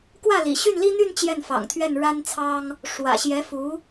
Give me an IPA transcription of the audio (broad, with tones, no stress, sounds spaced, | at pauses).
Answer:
k w ä˥˩ l ḭ˨˩ ɕ y˥˩ n l i˥ n̪ y˥˧ n t͡ɕ j ɛ˥˩ n f ɑ̰˨˩ ŋ t̪ʰ ɥ ɛ˥˩ n ɻ a˥ n t͡sʰ ɑ˥ ŋ | ʂ w ä̰˨˩ ɕ j ɛ˧˥ f u˧˥